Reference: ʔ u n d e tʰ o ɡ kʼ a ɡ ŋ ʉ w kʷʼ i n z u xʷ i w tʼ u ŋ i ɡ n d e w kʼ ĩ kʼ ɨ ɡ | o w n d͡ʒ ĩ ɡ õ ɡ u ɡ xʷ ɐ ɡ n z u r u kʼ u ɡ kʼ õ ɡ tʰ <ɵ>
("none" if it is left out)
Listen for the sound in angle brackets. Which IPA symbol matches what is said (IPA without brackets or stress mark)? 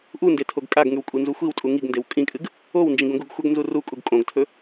ɵ